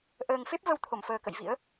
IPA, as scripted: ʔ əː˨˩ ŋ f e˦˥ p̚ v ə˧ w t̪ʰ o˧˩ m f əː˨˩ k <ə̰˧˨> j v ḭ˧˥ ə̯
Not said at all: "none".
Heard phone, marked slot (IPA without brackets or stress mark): ə̰˧˨